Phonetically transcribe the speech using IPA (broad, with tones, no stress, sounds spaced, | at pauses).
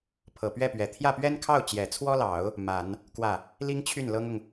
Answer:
pʰ ɤ˨˩ p ɥ ɛ˥˩ p ɥ ɛ˨˩ t̪ʰ j ä˥˩ p ɥ ɛ˥ n kʰ ɑ˥˩ ʊ̯ t͡ɕ j ɛ˨˩ t͡sʰ w ɔ˥ l ɑ˨˩˦ ʊ̯ | m a˨˩˦ n | k w ä˥˩ | l i˥ ŋ t͡ɕʰ y˥˩ n l ɤ˥ ŋ ʊ˨ ŋ